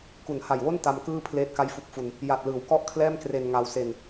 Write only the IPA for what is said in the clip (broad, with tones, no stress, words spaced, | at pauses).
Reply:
ku˩˦nha˨˩jwo˥˩n ta˧mkɯː˥˩ pʰleː˥˩t̚ka˥˩jfu˦˥k̚fu˧n | ja˨˩t̚lɯː˩˦wkɔ˥˩ʔkʰlɛː˥˩m kre˧nŋa˧wse˧n